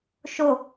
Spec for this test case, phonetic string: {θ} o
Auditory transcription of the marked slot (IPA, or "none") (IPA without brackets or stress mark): ʃ